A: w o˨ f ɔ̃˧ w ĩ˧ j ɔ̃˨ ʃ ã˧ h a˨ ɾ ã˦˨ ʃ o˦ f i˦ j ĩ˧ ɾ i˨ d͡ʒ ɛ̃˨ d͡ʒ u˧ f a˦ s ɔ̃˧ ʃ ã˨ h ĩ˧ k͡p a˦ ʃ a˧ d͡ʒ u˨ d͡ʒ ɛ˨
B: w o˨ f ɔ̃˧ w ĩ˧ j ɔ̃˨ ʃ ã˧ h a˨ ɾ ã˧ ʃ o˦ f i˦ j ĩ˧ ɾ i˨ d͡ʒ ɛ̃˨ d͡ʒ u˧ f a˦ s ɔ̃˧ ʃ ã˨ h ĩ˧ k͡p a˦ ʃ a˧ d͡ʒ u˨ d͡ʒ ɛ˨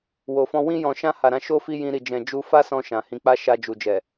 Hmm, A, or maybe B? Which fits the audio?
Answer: B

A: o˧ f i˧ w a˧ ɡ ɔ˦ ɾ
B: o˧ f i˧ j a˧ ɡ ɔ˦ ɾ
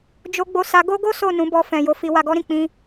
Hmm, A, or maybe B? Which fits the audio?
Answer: A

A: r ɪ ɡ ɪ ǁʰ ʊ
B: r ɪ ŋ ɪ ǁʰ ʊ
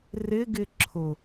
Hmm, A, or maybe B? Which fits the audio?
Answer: A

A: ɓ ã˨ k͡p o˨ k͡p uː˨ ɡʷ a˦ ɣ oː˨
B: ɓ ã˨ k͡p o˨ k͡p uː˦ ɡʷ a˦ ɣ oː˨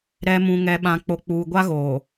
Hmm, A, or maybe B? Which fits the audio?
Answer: A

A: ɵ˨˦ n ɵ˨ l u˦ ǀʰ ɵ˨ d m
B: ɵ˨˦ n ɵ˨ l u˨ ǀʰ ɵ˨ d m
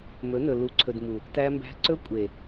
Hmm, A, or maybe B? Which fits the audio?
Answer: B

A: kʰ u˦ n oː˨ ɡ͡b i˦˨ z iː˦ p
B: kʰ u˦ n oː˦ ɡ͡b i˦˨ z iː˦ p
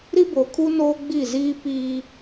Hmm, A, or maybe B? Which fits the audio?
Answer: B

